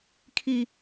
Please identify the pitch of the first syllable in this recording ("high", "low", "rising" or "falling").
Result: high